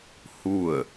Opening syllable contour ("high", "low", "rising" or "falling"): falling